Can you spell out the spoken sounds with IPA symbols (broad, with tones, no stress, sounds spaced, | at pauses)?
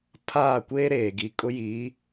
pʰ aː˦˨ kʷ eː˦ ɾ eː˨ ɡ i˨ kʼ ʊ˦ j i˨˦